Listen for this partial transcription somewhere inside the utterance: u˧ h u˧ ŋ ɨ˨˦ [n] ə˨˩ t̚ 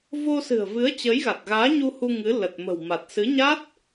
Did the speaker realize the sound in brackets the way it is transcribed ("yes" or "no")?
no